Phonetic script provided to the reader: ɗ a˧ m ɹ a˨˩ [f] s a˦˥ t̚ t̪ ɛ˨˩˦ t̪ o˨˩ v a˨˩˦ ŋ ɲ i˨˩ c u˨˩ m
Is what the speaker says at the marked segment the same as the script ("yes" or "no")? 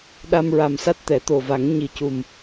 no